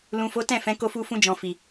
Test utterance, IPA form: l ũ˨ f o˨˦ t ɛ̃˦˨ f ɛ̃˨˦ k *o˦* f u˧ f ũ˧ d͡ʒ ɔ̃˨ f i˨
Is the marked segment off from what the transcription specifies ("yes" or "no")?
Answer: yes